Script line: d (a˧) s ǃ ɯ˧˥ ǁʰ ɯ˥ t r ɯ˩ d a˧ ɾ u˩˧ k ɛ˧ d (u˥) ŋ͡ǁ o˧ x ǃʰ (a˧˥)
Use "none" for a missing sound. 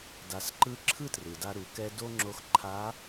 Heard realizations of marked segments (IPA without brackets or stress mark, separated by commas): a˩˧, o˥, a˧˥